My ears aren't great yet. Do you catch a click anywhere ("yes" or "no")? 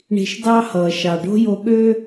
no